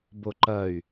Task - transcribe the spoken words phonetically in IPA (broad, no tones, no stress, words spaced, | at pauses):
boǃɐy̯